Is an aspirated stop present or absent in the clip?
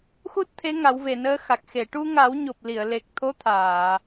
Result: present